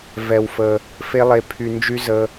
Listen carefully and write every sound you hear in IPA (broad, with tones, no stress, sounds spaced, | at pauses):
v ɛ˧ w f ə˧ | f e˦ lˠ e˧ pʰ y˧ n d͡ʒ y˦ z ə˦